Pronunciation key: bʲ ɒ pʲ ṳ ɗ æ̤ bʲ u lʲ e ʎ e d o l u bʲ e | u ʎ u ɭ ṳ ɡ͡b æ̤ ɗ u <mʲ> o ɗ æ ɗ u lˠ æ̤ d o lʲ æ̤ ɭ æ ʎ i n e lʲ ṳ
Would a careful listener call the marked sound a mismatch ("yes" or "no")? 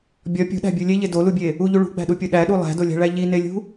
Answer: yes